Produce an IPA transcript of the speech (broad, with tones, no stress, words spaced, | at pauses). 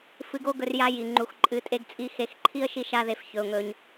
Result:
fɨ˧ɡo˦ɡɵ˧r ja˦ ji˨ ŋ͡ǃu˨xǃʼɨ˨˦ tʼe˦ɡt͡sʼi˦ xe˧xǃʰi˦ə̯ ʃi˦ʃa˦ðe˧f çɵ˧ʊ̯ŋɵ˧ɲ